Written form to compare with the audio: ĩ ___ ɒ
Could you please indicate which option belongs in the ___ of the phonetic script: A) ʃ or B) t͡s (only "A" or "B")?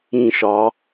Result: A